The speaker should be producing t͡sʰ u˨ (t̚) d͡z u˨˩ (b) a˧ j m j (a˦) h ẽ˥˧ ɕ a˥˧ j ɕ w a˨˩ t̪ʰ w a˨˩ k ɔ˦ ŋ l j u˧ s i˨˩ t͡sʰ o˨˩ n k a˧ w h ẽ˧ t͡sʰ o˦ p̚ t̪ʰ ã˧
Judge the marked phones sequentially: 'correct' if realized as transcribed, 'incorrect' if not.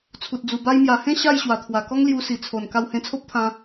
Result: correct, correct, incorrect

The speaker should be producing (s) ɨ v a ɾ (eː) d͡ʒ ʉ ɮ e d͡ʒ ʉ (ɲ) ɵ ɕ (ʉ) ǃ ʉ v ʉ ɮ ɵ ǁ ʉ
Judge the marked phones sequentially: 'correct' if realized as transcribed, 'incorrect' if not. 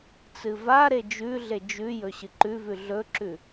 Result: incorrect, incorrect, incorrect, incorrect

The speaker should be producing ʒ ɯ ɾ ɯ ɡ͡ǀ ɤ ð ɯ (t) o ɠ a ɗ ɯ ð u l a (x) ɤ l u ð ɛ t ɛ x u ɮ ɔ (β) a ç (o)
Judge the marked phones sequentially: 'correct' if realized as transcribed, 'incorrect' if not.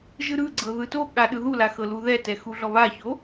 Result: correct, correct, correct, correct

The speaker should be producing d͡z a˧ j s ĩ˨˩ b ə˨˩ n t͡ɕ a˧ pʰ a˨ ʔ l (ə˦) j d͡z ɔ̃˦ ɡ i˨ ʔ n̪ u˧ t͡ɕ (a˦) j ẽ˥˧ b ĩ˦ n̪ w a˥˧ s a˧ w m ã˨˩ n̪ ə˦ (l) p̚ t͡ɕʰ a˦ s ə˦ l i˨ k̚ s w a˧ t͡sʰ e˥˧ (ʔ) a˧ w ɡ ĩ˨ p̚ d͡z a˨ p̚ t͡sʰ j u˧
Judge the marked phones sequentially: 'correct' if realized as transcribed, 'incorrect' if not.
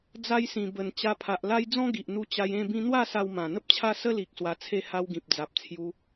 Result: incorrect, incorrect, incorrect, incorrect

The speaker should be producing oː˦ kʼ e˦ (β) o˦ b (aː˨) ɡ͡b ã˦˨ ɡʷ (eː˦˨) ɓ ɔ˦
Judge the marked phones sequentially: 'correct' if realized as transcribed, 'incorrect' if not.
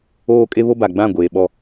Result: correct, incorrect, incorrect

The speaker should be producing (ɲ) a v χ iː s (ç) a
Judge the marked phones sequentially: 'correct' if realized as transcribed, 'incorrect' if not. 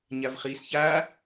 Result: correct, correct

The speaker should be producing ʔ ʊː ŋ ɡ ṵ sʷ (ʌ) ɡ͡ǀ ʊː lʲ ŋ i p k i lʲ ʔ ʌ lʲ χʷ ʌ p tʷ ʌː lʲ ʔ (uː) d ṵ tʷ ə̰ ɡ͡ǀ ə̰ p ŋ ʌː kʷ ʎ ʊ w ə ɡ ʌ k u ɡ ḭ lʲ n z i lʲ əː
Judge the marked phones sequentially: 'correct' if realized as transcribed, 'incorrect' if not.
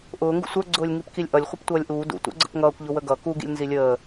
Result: incorrect, correct

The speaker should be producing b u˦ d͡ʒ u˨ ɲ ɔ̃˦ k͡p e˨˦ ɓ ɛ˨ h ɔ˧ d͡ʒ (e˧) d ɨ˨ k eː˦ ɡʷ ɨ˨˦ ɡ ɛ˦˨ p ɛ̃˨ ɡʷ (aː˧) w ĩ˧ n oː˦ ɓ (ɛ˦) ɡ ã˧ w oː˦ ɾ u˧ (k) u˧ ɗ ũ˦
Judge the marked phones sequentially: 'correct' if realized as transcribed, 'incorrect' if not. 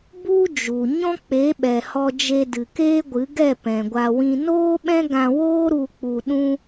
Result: correct, incorrect, incorrect, incorrect

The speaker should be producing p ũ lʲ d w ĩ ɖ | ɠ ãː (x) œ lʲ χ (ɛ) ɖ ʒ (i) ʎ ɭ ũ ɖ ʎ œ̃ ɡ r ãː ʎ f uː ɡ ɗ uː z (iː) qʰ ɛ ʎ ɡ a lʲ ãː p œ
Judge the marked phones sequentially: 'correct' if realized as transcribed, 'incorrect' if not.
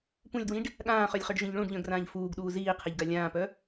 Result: incorrect, incorrect, incorrect, correct

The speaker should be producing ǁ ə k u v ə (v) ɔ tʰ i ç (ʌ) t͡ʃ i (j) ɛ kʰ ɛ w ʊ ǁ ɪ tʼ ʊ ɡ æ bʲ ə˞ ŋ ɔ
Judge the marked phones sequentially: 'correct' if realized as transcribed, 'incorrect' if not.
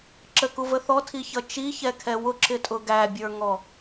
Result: incorrect, correct, incorrect

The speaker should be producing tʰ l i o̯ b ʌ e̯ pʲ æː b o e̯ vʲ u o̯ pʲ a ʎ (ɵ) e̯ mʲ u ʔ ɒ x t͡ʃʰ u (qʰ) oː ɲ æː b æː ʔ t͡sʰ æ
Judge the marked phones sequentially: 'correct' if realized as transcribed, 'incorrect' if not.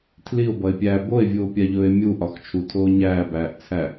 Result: incorrect, incorrect

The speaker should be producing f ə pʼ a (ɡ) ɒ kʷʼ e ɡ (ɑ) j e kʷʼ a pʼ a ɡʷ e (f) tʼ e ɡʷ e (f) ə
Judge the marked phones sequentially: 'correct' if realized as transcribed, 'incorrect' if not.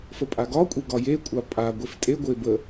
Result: correct, incorrect, correct, incorrect

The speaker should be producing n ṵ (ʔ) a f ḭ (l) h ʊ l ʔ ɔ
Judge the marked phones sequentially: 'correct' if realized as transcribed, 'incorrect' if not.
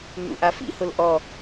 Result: correct, incorrect

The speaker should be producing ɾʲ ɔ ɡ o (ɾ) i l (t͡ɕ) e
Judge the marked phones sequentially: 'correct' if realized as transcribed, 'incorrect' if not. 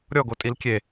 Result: incorrect, incorrect

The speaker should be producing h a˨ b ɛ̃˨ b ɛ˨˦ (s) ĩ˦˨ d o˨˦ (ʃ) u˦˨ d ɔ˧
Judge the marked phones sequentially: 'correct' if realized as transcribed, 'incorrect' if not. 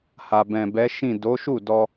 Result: incorrect, correct

